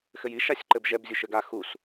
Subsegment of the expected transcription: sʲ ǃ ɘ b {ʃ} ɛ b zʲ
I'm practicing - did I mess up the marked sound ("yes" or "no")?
yes